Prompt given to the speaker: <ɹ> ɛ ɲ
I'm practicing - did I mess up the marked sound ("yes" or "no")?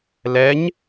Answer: yes